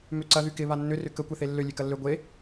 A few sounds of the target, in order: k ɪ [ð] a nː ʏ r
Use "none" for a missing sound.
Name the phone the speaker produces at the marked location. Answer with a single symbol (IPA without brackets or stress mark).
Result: β